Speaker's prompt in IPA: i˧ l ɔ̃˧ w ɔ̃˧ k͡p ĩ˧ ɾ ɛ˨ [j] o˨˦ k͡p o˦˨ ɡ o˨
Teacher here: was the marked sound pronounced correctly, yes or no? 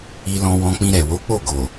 no